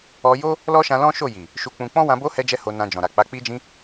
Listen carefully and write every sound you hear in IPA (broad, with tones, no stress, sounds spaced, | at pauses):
ɔ˧ j o˦ | l ɔ˦ ʃ ã˧ l ɔ̃˦ ʃ o˦˨ j i˨ | ʃ u˧ k͡p ũ˧ k͡p ɔ̃˦ w ã˧ b o˦ h ɛ˦ d͡ʒ ɛ˦ h o˧ n ã˧ d͡ʒ ɔ̃˨ ɾ a˨ k͡p a˨˦ k͡p i˧ d͡ʒ ĩ˧